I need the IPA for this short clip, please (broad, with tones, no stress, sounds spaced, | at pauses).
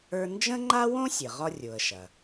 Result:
ə˞˥ n d͡ʒ ə̃˥ ŋ͡ǃ a˥ w õ˥ sʲ ə˩ ʁ ɒ˥ rʲ o˩ ə̯ ʃ ɐ˩